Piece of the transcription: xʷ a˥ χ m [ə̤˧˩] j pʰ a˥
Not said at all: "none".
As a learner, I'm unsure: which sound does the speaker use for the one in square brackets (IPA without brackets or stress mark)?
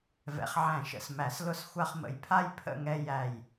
ə̰˧˩